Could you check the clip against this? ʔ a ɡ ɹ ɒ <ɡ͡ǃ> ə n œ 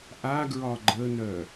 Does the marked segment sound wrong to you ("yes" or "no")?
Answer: no